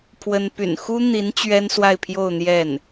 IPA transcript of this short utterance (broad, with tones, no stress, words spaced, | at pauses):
pʰwə˥n py̰˨˩nxu˥n̪i˧˥n t͡ɕɥɛ˥nswa˥˧ɪ̯pʰjo˥˧ʊ̯ n̪jɛ˥˩n